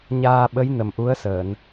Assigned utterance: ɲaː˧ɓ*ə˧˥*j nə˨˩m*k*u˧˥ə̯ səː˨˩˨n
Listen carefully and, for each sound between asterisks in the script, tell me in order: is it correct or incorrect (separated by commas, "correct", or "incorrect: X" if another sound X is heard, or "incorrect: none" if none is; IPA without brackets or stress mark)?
correct, incorrect: ʔ